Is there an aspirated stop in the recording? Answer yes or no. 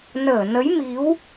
no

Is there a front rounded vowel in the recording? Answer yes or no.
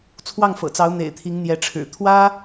no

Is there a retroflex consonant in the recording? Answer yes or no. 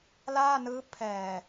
no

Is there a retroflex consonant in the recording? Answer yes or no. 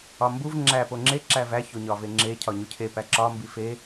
no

